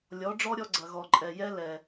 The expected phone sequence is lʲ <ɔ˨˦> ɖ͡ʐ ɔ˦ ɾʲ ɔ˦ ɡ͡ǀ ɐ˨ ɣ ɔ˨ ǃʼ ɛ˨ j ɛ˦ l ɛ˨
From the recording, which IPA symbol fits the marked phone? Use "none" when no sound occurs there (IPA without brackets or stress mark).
ɔ˨˦